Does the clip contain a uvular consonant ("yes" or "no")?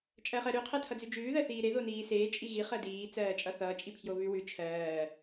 yes